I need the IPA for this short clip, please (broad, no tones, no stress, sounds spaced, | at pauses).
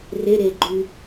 r e ɾ e ɡ͡ǃ y